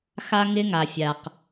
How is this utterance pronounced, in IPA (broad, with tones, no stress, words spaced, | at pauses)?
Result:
xa˦ŋɪ˦ ŋa˨fʲa˨q